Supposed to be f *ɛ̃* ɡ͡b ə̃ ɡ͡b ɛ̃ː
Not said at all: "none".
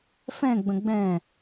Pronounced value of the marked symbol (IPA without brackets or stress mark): ɛ̃